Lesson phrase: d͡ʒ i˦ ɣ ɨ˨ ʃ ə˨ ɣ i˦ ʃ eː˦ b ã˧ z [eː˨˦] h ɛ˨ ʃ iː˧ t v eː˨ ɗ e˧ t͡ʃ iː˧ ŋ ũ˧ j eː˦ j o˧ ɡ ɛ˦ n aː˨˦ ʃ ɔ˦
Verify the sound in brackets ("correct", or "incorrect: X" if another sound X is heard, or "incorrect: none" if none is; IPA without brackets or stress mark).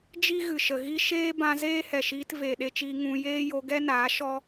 incorrect: eː˦